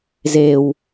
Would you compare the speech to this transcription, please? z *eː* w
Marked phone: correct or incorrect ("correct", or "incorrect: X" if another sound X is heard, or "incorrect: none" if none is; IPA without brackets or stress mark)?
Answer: correct